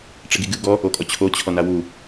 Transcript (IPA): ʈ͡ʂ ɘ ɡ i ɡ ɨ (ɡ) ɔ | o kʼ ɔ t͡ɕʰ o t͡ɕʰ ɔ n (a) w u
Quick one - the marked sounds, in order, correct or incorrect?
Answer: correct, correct

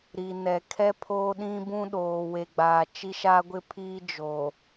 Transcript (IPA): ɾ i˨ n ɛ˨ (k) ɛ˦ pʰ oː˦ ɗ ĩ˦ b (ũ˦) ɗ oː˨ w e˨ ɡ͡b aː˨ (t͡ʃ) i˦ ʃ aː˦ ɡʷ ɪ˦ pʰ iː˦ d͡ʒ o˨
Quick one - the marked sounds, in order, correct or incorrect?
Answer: incorrect: kʰ, correct, correct

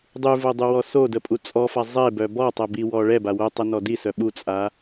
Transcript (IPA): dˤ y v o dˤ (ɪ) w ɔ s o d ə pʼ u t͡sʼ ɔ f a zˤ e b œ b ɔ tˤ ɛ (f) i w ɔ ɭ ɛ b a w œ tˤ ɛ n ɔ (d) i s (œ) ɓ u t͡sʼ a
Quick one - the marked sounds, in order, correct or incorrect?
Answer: incorrect: y, incorrect: b, correct, correct

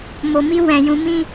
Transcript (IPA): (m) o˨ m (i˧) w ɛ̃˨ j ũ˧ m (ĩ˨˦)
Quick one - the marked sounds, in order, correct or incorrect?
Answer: correct, correct, incorrect: ĩ˦

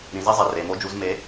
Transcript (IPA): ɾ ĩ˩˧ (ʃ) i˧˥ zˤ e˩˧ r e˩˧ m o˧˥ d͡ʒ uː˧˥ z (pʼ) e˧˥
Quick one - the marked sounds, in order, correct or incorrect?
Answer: incorrect: z, incorrect: m

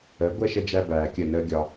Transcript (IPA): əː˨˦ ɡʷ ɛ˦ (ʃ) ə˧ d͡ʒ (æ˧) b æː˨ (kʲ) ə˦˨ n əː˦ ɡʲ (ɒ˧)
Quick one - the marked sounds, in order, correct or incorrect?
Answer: correct, correct, correct, correct

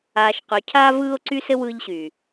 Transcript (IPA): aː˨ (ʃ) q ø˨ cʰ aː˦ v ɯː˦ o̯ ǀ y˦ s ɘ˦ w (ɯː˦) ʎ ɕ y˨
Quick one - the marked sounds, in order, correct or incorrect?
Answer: correct, incorrect: ɯ˦

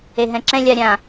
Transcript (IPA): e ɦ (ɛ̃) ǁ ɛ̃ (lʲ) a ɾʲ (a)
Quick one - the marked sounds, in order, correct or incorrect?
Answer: correct, correct, incorrect: ã

